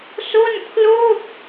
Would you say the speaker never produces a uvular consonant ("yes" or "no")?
yes